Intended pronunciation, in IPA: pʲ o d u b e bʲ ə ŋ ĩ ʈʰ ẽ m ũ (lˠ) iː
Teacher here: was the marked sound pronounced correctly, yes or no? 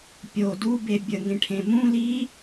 no